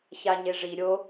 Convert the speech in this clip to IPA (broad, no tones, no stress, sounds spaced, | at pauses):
ç a ɲ e ʐ i ɾʲ o